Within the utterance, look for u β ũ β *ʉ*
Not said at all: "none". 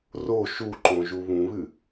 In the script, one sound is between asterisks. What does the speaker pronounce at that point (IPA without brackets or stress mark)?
ɨ